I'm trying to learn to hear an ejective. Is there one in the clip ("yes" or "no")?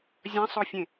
no